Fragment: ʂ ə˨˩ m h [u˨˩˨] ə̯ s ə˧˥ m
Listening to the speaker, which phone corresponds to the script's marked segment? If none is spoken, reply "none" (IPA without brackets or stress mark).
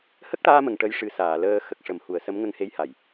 u˨˩˨